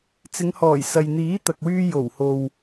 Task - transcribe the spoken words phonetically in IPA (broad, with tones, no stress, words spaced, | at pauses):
t͡sɪ˨˧ŋhɔː˨˩j sɐ˨jn̪iː˨˥t̪ɐ˨k̚wyː˧ jo˨˩who˨w